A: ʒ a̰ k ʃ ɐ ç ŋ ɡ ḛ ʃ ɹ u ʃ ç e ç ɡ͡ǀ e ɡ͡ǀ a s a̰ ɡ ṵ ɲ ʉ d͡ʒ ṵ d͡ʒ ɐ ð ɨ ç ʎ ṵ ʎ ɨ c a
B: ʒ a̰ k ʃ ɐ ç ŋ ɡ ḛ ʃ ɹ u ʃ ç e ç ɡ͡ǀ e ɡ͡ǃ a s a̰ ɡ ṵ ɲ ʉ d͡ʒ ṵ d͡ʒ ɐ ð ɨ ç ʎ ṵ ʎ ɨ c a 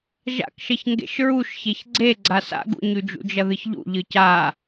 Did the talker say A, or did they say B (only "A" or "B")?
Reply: A